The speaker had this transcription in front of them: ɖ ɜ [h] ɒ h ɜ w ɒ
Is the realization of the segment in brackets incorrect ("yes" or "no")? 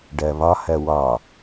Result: yes